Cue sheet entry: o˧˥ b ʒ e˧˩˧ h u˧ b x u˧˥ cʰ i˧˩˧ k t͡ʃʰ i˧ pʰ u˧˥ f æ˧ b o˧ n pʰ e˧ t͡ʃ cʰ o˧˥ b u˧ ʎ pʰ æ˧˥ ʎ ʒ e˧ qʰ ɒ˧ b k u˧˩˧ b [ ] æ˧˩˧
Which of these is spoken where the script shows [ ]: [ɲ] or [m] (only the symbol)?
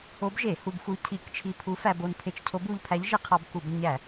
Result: ɲ